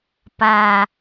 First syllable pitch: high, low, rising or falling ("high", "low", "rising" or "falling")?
low